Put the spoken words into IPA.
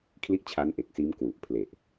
kʰ l i˥˩ ʔ t͡ɕʰ a˦˥ n ʔ e˨˩ k̚ s iː˦˥ m k w u˨˩ ʔ pʰ l e˨˩ ʔ

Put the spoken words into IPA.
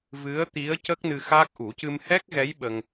v ɨ˧˥ ə̯ t̪ i˧˥ ə̯ c ə˦˥ k̚ n ɨ˧ x aː˦˥ k̚ ʔ u˨˩˦ c ɨ˧ m h ɛ˦˥ k̚ ɣ ɛ˧˥ j ɓ ə˧ ŋ

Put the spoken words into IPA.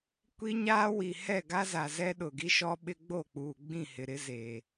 kʷ i˦ ɲ aː˦ w i˨ h ɛ˦˨ ɡ a˦ z a˨ z ɛ˦ ɗ ʊ˨ ɡ i˦ ʃ ɔ˦ ɓ ɪ˦ ɡ͡b o˦˨ k͡p uː˨ ɡ͡b ĩ˦˨ h ɪ˨ ɾ ɪ˦ z eː˨

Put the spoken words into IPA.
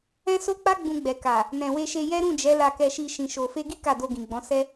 ɛ̃˦ s o˦ k͡p a˦ ɡ͡b ũ˧ ɡ͡b ɛ˨ k a˨ | n ɛ̃˨ w e˧ ʃ e˧ j ɛ˦ ɾ ũ˦˨ d͡ʒ ɛ˨˦ l a˧ k ɛ˧ ʃ i˧ ʃ ĩ˨ ʃ o˨ f e˧ ɡ i˦ k a˦˨ d o˧ ɡ ĩ˨ ɡ͡b ɔ̃˨˦ s ɛ˦

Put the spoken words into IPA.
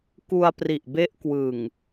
k u˧ a̯ p r i˨˩ ʔ b e˦˥ ʔ k w ɯ˨˩ ŋ

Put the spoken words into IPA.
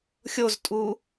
xʲ o z tʼ u

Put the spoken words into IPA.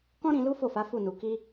k ɔ̃˦ ɾ ĩ˧ l u˦ f o˦˨ f a˨˦ f u˦˨ n u˨ k i˧

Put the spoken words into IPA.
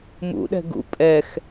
m ṵ ɗ ɛ̤ ɡ ṵ pʼ ɛ x

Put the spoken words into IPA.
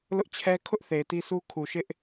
l ʊ˦ ʔ t͡ɕʰ ɛ˦ kʰ ʊ˦ ʔ θ e˨ ɪ̯ t i˦ sʰ u˦ kʰ u˨ ʃ ɪ˦ ʔ

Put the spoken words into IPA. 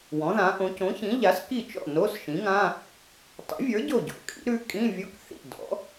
w ɔ̃˩˥ ð ã˩˥ ʔ õ˩˥ c õ˩˥ ç ĩ˩˥ ʎ a˩˥ s k i˥˩ t͡ʃ ɔ̰˥˩ n o˧˥˧ s ʃ ĩ˩˥ ŋ ã˧˥˧ | tˤ ḭ˩˥ vʲ ə˞˩˥ ɟ o˥˩ ɟ o̰˩˥ kʼ ḭ˩˥ ɾ ʉ˩˥ kʼ ĩ˧˥˧ vʲ o˧˥˧ k θ ḭ˥˩ d ɔ̰˩˥

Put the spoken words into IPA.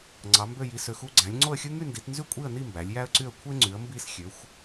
ŋ͡ǀ ɑ˨˦ m b ø˥˧ j i˨˦ s ø˨˦ x u˥˧ ɡ͡ǀ æ̃˨˦ lʲ ŋ͡ǀ o˥˧ ə̯ xʲ ɯ˥ ŋ y˥˧ n d i˨˦ t n z y˥˧ kʷʼ i˥˧ ə̯ n i˥˧ m b æ˨˦ lʲ j æ˥ ə̯ ǀ y˥˧ ə̯ kʷʰ e˥ ŋ͡ǀ y˨˦ ə̯ m b i˥˧ s xʲ ø˨˦ xʷ

